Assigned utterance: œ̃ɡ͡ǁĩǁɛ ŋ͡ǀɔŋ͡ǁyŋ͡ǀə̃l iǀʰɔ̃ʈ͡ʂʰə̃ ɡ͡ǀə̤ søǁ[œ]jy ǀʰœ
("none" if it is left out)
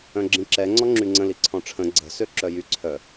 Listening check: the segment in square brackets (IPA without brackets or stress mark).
œ